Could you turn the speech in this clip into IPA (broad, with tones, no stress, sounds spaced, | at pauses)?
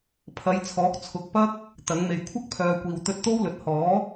pʰ ɐ˨˧ j t͡sʰ ɔː˨˥ k̚ t͡sʰ ʊ˨ k̚ p ɐ˥ k̚ | t̪ ɐ˨˧ ŋ m e˨ j kʷʰ ɐ˥ k̚ pʰ œː˨ kʷ iː˨ w t̪ ɵ˧ t̚ t̪ o˥ w l ɵ˨ t̚ h ɔː˨˥